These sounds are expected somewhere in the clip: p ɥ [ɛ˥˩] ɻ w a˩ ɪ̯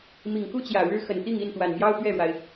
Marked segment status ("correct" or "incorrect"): correct